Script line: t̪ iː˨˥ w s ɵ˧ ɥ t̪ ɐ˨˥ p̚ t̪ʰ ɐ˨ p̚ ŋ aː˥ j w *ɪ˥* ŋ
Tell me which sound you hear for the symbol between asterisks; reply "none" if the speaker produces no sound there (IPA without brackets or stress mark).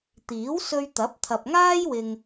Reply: ɪ˧